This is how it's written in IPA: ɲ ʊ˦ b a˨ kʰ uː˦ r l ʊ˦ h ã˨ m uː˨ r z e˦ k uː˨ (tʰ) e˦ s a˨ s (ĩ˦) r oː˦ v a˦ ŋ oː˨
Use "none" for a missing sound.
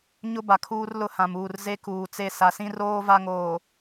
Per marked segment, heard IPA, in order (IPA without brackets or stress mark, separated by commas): t͡s, ĩ˦